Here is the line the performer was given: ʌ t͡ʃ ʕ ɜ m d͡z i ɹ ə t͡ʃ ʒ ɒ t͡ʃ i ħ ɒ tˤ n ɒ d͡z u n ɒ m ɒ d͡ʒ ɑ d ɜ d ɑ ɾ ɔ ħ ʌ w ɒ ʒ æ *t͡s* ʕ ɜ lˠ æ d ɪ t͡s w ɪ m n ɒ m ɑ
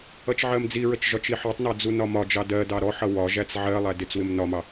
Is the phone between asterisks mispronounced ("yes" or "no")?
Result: no